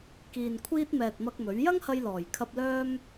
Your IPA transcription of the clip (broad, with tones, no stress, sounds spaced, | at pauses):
k iː˨ n kʷʰ iː˧ t̚ m ɛː˨ t̚ m ɐ˧ k̚ m ɵ˨˥ ɥ j ɐ˥ ŋ h ɐ˧ j l ɔː˨˩ j kʰ ɐ˧ p̚ l œː˥ m